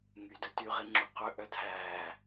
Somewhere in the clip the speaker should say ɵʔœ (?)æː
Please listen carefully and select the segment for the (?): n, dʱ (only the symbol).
dʱ